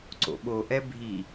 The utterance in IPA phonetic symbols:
ǀ o̰ ɓ o ʔ ɛ bʱ i

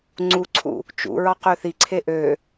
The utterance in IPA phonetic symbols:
ŋ͡ǀ u ǀʰ ṵ | t͡ʃ ṵ ɹ ɑ q ø θ i ǀʰ e ʔ ø

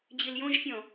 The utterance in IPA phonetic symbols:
d͡ʑ i l j õ ʒ fʲ ɔ̃

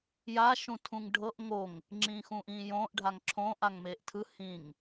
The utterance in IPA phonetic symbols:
j a ʃ ũ tʰ ũ ŋ ɖʱ ɤ ʔ ŋ o ŋ | ŋ͡ǁ ĩː x ũː ʔ ĩː j õː ʔ ɖʱ a ŋ ǁʰ õː ʔ a ŋ m eː ʔ tʰ ɯ h ĩ ŋ

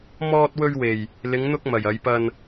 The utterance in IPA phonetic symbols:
m ɔː˧ t̚ w ɵ˧ ɥ w e˨˩ j | l ɪ˨˧ ŋ n̪ ʊ˧ k̚ m ɐ˨˩ j ɐ˨˧ j p ɐ˧ n

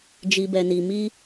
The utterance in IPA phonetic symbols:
d͡ʒ i˨ b ɛ˨ n i˨ m i˧

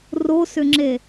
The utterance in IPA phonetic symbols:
r o s ʏ ŋ͡ǁ e

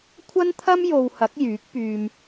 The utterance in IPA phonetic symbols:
kʷʰ ɐ˥ n t̪ʰ ɐ˥ m j o˨ w h ɐ˨˥ k̚ j yː˨˥ k̚ p yː˨ m

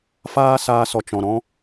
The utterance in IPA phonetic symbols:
f aː˦ s aː˧ s ɔ˨ t͡ʃ ɔ̃˨ ɾ ɔ̃˦

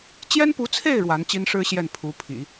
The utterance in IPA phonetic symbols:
t͡ɕ j ɛ˥ n p u˧˥ t͡sʰ e˥˩ ɪ̯ ɻ w a˧˥ n t͡ɕ i˥ n ʂ ɻ̩˥ ɕ j ɛ˥˩ n pʰ u˧˥ pʰ ḭ˨˩˦

